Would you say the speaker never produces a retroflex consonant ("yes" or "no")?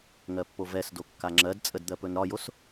yes